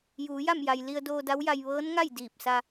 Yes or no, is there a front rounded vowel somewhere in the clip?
no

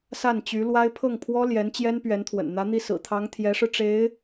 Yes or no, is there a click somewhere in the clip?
no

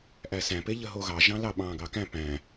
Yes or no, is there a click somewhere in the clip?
no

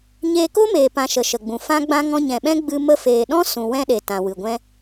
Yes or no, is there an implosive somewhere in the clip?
yes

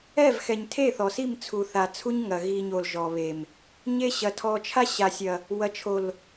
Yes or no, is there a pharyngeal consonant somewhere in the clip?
no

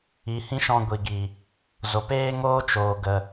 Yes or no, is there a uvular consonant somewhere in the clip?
no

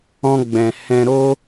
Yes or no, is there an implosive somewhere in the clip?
no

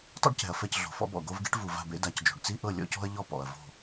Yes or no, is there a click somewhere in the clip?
no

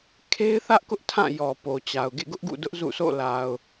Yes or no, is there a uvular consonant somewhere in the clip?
no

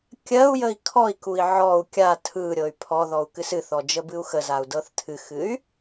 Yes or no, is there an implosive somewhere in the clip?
no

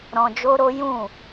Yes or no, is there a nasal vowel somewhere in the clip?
yes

